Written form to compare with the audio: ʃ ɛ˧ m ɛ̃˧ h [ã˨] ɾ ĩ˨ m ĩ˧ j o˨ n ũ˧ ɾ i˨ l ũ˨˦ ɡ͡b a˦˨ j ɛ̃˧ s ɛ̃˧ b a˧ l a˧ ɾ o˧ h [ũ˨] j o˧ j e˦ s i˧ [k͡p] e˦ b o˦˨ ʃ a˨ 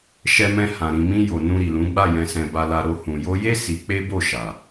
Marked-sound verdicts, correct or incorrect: correct, correct, correct

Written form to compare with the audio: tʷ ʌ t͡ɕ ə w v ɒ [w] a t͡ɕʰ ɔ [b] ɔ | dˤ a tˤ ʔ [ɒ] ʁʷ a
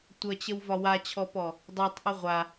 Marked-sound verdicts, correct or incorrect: correct, incorrect: p, incorrect: ʌ

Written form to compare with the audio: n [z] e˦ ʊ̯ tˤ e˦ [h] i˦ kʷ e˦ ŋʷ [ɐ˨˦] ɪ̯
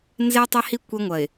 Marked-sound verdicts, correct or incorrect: correct, correct, incorrect: ɐ˨

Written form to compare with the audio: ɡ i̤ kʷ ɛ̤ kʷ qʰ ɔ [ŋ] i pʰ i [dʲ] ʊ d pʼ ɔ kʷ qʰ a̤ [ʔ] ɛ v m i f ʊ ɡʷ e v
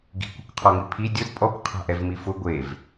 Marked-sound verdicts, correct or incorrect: correct, correct, correct

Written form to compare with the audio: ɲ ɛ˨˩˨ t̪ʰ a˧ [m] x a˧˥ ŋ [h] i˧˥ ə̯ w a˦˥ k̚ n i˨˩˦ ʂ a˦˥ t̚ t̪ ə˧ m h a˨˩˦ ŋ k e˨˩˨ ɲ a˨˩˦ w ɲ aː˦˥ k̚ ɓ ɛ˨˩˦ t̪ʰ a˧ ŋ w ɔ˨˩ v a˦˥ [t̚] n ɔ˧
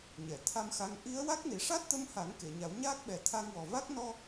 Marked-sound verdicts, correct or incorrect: correct, incorrect: ʔ, incorrect: k̚

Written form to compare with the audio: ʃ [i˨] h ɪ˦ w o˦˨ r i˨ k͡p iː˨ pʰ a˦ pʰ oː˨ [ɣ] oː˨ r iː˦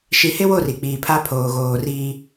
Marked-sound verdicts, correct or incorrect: correct, correct

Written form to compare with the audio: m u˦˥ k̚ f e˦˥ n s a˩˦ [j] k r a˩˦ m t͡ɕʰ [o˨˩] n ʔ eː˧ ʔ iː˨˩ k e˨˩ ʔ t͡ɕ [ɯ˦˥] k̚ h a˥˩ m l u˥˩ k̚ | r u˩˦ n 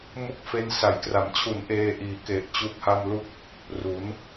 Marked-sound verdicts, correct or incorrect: correct, incorrect: u˨˩, incorrect: u˦˥

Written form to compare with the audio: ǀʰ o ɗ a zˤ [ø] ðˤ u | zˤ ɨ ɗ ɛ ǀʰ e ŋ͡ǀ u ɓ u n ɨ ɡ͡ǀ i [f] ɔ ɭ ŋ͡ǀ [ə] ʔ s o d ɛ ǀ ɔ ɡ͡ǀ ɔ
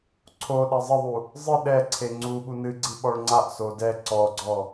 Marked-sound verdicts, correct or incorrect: incorrect: ɘ, incorrect: ɓ, incorrect: a

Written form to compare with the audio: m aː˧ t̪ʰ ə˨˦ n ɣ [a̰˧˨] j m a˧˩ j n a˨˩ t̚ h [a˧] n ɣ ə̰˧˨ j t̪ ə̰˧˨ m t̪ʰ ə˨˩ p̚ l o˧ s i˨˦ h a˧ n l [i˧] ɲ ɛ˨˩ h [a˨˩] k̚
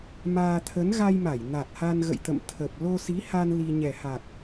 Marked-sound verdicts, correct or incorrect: incorrect: a˧, correct, correct, correct

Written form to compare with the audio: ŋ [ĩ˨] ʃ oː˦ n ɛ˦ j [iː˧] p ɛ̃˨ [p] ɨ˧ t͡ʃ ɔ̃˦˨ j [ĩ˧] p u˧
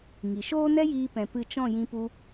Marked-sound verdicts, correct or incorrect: incorrect: i˨, correct, correct, correct

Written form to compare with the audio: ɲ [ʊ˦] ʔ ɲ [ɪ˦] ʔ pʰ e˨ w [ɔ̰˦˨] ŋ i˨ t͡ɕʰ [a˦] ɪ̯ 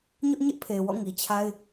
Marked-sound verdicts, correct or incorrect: correct, correct, correct, correct

